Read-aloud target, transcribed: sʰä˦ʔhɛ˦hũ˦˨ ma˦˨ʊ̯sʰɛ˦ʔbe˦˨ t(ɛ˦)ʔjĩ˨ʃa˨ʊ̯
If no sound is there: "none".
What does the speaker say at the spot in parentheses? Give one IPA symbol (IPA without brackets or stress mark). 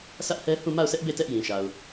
ɛ˦